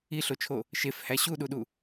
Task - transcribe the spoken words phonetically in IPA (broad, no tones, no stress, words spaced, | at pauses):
iɬot͡ʃʰo | ʃefhæ ɕuɗuɗu